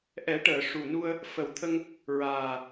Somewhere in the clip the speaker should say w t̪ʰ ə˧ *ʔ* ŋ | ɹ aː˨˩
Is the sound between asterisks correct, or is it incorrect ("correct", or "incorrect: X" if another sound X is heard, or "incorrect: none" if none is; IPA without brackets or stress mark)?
incorrect: none